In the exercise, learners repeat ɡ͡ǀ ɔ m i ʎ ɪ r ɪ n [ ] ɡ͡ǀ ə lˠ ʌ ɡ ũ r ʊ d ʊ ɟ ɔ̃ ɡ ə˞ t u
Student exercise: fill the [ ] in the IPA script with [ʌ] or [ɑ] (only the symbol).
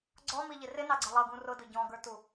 ɑ